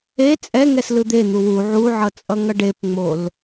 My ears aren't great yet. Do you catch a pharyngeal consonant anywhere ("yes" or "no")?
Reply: yes